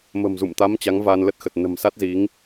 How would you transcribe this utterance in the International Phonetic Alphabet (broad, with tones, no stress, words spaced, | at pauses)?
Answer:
mə̤˨˩mzṵ˧˨mt̪a˨˦m t͡ɕa˨˦ŋvaː˧nlə˦˥t̚ xə˨˩t̚nə̤˨˩m sa˦˥t̚zi˨˦ŋ